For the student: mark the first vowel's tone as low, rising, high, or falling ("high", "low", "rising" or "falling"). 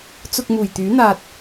low